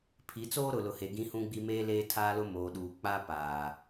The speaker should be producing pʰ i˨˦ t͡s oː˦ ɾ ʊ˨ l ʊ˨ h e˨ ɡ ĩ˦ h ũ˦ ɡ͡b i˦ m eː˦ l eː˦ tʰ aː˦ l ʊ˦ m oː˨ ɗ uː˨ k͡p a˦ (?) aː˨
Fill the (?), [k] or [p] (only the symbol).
p